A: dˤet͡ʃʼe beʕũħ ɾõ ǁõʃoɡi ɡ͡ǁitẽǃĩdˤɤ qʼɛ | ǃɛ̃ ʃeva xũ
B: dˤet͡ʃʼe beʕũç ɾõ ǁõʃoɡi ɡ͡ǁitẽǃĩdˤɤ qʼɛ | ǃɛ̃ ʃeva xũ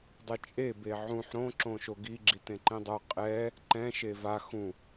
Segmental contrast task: A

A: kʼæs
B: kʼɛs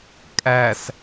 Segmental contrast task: A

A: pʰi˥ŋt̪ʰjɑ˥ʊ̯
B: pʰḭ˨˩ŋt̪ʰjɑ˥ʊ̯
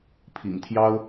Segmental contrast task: B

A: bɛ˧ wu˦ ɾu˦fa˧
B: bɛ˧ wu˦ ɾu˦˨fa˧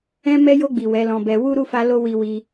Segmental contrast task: B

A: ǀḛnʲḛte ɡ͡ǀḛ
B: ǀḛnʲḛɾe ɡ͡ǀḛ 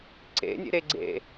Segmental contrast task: B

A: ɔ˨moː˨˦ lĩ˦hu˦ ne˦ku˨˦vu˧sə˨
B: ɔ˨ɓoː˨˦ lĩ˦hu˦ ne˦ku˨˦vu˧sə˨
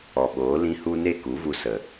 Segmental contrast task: B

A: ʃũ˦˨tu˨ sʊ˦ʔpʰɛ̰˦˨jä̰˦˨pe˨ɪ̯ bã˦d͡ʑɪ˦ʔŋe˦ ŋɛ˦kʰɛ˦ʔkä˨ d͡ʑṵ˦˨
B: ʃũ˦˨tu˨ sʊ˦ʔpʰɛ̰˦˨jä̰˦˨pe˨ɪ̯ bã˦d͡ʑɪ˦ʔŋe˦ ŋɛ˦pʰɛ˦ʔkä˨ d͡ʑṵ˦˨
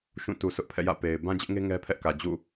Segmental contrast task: B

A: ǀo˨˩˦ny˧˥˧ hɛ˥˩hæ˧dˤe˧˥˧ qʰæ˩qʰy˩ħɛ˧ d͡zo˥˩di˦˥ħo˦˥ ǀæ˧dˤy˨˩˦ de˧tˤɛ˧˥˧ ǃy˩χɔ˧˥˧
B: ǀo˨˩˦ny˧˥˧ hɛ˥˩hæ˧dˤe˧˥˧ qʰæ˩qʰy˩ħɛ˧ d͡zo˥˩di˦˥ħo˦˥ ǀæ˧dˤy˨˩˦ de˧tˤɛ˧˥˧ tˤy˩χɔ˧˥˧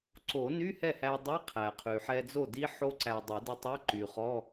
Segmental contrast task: A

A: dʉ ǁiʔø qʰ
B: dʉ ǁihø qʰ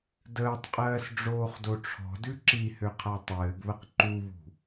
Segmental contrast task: B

